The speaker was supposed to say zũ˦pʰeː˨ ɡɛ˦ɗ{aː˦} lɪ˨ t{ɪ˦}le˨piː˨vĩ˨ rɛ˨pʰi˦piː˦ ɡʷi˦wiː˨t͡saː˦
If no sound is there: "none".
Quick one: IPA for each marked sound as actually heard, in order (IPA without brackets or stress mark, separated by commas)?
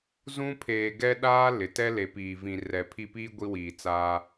aː˦, ɛ˦